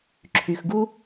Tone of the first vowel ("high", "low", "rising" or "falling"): low